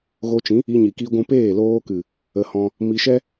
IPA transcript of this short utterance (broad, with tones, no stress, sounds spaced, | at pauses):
ɣ o˧ t͡ʃ ĩ˨˦ | i˦ ɲ i˧ k i˦ ɡʷ ũ˦ p eː˦˨ l oː˧ k ɨ˨ | ə˧ h ɔ̃˧ | m i˧ ʃ ɛ˦